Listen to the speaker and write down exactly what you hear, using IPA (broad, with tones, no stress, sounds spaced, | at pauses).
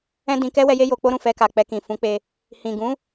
ɛ̃˦ d ĩ˧ k ɛ˦ w ɛ˧ j e˦ j o˧ k͡p o˦ ɾ ũ˦˨ f ɛ˧ k a˨ k͡p ɛ˧ k ĩ˨ f ũ˨˦ k͡p e˧ | h ĩ˨ ɡ ũ˨˦